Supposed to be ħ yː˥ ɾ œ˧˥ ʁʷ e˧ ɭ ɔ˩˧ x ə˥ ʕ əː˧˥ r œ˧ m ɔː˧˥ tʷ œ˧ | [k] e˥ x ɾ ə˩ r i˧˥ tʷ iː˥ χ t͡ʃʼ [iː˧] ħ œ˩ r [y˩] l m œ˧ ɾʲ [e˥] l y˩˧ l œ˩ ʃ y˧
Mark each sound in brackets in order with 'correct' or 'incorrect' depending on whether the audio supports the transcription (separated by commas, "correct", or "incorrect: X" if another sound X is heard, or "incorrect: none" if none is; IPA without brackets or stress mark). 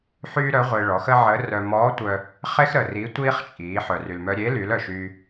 incorrect: χ, incorrect: iː˩˧, correct, incorrect: e˧˥